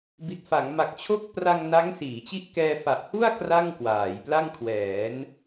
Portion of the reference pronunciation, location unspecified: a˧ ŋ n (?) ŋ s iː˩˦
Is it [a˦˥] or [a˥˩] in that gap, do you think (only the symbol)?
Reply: a˦˥